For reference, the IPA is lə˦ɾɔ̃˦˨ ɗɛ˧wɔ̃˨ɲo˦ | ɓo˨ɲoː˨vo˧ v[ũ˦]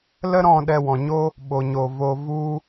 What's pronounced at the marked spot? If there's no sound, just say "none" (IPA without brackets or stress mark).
u˦